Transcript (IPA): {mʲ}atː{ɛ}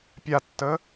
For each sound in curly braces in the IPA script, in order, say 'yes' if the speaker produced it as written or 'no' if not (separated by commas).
no, no